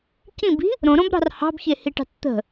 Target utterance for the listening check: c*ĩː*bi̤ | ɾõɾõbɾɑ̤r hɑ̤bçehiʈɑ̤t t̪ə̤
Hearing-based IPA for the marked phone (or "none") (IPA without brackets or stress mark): ĩ